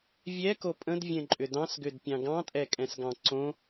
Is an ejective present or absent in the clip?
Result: present